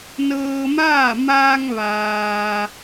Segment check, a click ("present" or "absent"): absent